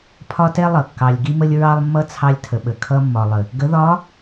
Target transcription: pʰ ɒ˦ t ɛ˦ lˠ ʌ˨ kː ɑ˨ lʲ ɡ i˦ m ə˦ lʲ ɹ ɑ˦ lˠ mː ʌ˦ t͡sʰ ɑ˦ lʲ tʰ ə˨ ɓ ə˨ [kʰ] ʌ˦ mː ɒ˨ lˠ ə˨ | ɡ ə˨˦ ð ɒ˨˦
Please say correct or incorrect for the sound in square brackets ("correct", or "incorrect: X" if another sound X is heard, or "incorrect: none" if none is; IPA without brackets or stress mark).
correct